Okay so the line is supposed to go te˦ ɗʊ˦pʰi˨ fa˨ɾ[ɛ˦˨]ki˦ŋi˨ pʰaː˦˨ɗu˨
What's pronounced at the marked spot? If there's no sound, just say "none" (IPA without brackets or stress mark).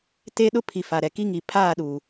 ɛ˨